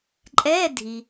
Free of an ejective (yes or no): no